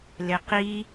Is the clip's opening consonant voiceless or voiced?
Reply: voiced